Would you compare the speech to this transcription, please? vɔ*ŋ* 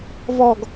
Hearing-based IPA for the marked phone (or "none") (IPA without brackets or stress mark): ɡ